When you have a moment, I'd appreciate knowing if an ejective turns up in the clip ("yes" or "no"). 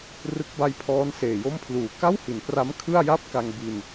no